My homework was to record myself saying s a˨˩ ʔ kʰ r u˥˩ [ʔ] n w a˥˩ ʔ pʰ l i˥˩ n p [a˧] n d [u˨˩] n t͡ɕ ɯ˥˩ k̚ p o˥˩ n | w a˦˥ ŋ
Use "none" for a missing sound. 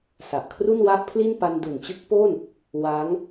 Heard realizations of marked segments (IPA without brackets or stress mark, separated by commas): none, a˧, u˨˩